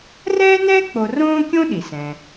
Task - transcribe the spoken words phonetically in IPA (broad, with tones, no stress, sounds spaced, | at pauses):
r ɛː˥ n ɛː˥ k͡p o˧ r õː˥ kʲ õ˥ ɗ i˩ s ɛ̃˩